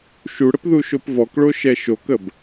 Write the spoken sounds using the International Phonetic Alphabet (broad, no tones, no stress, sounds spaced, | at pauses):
ʃ u ɽ ə p ð u ʃ o p v ɔ k ɭ o ʃ ɛ ʃ o k ə b